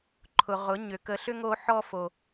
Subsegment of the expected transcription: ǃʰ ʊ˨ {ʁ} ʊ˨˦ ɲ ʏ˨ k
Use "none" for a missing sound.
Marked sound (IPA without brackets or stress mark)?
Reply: ʁ